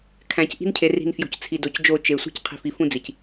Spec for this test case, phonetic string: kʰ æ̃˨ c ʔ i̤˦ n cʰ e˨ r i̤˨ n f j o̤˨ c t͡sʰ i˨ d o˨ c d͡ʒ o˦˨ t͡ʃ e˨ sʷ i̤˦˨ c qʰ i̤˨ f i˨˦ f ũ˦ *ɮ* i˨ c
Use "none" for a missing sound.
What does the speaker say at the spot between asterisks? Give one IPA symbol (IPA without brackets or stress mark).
d͡z